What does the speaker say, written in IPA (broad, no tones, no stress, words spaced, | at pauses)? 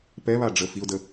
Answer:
pɛβa ɖ͡ʐə fiʊ̯də